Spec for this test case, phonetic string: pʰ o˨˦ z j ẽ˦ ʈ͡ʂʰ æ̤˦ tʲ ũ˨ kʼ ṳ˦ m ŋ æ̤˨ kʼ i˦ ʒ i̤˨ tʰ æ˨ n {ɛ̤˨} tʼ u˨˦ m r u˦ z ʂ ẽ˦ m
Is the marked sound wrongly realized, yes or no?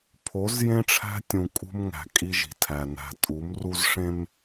yes